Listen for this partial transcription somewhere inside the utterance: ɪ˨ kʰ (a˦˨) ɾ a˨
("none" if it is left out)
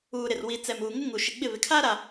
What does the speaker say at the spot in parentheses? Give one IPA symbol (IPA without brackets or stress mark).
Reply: a˦